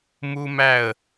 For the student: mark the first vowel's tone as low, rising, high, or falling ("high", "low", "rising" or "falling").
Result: high